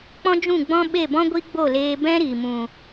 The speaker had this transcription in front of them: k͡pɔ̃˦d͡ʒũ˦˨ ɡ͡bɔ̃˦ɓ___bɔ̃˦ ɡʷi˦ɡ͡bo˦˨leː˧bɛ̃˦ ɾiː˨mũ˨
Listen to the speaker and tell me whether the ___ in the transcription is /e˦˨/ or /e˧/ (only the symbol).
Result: e˦˨